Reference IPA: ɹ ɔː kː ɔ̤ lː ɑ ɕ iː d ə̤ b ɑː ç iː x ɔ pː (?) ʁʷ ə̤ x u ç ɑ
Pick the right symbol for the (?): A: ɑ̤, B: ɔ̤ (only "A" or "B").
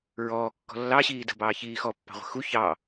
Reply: A